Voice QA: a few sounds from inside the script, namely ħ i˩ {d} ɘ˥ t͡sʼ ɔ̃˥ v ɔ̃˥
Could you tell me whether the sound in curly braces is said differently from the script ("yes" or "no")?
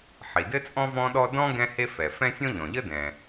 no